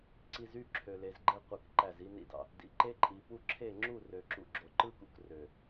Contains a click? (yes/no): yes